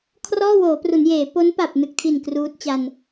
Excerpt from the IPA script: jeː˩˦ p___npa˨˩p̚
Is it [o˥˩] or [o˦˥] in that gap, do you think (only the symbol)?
o˦˥